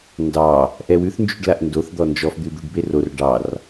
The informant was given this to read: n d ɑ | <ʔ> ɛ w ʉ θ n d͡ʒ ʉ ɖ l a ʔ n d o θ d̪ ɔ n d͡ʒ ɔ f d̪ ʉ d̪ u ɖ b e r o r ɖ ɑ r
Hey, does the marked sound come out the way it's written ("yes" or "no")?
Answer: yes